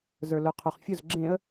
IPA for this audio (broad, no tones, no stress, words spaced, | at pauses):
zə˞lʊ qʰʊχ fʲʊz ɡ͡ǁẽə̯